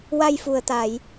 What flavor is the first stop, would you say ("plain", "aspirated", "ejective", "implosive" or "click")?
plain